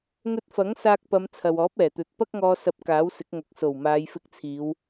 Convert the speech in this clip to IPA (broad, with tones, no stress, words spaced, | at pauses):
ŋɵ˧t̚fɐ˨˥ŋsaː˧k̚pɐ˨˧m t͡sʰɐ˨wɔː˨˥p̚ɛː˨˩t̪ɵ˨t̚ pɐ˥k̚ŋɔː˧ sɐ˨˥p̚ kaː˨˥wsɪ˨˥k̚ŋɐ˨˥k̚ so˨˩wmaː˨˧jfɪ˧k̚t͡sʰiː˨˧w